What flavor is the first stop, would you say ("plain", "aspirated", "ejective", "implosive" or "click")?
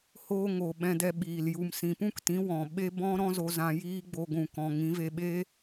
implosive